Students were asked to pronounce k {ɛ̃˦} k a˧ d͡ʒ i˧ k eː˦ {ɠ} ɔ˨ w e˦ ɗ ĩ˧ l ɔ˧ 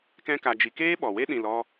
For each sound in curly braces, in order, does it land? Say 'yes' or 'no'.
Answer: yes, no

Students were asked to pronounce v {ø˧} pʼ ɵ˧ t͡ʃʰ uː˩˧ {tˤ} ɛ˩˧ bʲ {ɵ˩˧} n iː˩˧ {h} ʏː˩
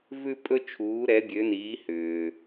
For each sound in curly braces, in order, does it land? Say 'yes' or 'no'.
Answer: no, no, no, yes

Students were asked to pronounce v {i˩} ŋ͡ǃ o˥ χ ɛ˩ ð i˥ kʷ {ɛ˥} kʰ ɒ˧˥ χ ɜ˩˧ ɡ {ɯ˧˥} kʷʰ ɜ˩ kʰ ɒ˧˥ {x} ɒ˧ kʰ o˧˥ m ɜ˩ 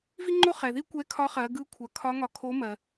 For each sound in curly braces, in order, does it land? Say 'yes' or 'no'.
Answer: no, no, yes, no

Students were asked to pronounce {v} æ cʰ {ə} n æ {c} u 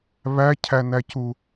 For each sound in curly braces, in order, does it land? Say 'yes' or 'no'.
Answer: no, no, yes

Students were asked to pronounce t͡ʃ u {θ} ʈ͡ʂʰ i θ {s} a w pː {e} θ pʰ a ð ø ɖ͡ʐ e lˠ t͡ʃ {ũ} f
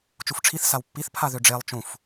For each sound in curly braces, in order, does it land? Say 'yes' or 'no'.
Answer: no, yes, no, yes

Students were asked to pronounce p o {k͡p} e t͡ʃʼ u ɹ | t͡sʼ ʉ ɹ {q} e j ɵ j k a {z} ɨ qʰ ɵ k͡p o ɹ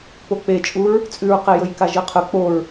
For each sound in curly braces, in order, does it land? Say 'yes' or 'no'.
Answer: yes, yes, no

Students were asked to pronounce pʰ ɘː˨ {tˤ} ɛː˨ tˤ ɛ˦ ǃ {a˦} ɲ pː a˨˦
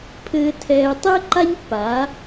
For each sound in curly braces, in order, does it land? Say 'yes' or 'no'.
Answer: no, yes

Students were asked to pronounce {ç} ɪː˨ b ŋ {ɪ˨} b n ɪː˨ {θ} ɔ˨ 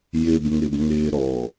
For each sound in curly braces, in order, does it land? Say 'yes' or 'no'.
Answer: no, yes, no

